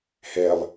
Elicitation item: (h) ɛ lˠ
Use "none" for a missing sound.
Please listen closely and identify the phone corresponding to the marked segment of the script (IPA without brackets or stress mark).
h